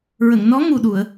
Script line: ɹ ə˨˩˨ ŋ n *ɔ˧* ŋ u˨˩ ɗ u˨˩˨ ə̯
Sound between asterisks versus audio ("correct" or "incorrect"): incorrect